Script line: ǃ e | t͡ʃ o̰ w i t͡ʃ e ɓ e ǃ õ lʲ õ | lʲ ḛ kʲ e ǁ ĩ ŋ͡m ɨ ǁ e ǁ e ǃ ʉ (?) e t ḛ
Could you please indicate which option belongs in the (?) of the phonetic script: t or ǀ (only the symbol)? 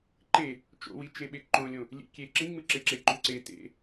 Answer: ǀ